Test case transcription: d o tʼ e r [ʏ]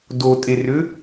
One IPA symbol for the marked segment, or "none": ʏ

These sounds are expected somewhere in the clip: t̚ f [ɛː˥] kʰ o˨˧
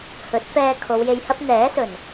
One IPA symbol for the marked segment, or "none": ɛː˧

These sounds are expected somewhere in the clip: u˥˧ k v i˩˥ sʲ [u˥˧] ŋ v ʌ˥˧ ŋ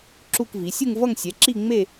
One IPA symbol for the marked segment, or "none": u˥˧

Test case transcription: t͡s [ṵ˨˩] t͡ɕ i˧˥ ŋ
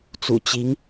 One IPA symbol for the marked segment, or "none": ṵ˨˩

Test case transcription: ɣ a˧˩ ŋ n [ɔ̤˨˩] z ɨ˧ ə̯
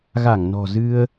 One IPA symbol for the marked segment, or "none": ɔ̤˨˩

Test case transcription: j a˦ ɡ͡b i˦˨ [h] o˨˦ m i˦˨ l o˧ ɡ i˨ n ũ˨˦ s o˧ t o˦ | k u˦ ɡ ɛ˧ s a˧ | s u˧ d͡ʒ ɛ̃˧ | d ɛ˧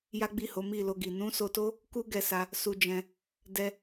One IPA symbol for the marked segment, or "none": h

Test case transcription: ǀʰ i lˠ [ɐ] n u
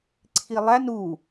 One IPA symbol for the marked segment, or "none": æ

